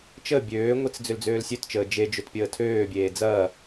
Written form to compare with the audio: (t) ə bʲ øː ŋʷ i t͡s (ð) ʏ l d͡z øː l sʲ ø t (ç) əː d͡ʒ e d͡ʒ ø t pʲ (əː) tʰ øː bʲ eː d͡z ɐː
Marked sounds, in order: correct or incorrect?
incorrect: t͡ʃ, incorrect: d͡z, incorrect: t͡ʃ, correct

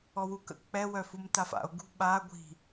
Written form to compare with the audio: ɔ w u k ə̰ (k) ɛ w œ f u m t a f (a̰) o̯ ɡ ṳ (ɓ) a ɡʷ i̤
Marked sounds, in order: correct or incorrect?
incorrect: k͡p, correct, correct

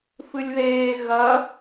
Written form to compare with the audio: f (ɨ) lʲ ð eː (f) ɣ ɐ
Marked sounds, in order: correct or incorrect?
correct, incorrect: none

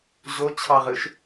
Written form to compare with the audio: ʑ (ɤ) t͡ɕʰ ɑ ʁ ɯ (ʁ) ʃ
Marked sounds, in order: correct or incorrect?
incorrect: o, incorrect: none

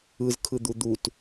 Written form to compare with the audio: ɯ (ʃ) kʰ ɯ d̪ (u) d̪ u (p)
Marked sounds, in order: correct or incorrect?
incorrect: z, correct, incorrect: t

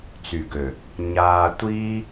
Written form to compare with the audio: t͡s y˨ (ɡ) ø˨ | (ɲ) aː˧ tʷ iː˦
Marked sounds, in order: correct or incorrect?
correct, correct

